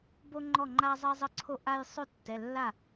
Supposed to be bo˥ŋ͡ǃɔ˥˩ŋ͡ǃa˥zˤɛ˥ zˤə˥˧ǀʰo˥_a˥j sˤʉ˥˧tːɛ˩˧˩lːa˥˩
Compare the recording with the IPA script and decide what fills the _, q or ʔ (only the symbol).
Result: ʔ